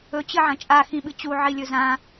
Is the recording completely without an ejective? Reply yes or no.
no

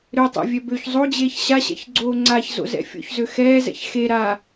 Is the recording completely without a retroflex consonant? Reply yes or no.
yes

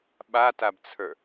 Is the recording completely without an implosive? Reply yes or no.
no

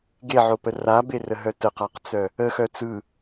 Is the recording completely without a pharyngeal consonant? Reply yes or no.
no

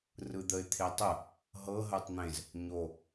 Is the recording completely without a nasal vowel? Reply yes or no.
no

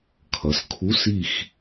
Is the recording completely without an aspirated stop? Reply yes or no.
no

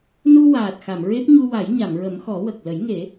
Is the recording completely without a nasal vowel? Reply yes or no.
yes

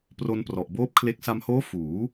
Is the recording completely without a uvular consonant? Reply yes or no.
yes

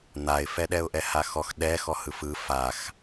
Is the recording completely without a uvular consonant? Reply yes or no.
yes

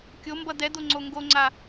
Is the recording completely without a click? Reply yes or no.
no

